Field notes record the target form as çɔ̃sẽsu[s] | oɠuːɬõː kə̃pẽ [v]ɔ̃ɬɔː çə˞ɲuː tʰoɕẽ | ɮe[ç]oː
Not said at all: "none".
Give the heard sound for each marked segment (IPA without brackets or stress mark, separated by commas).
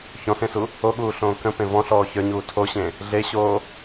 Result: none, v, ɕ